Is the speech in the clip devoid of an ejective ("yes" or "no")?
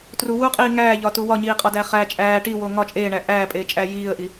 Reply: no